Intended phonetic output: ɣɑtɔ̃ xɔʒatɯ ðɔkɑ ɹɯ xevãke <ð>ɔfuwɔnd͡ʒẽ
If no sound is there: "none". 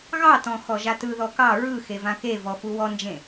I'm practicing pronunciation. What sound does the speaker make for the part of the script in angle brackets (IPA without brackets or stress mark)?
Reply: v